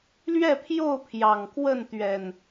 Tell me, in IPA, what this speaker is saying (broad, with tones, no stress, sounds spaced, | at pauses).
l ɥ ɛ˥˨ pʰ j o˥˨ ʊ̯ pʰ j ɑ˨˩ ŋ k w ə˥˨ n t̪ ɥ ɛ˨˩ n